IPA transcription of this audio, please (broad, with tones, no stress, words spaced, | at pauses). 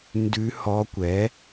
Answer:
ndʉ˧˥hɔ˧˥kʷɛ˩˥